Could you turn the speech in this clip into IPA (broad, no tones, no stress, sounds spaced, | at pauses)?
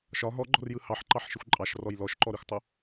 ʃ ɒ ɦ ɔ ɡ͡ǃ ɔ̤ r j ɯ h ɑ ħ ǃ ɑ ħ ʃ ɯ xʷ ǃʼ ɑ ʃ r ɔ j l ɔ ʃ ǃ ɔ ɾ i xʷ tˤ o